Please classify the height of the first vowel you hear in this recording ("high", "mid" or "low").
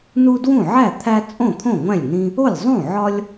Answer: high